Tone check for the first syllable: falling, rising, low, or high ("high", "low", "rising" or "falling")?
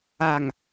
low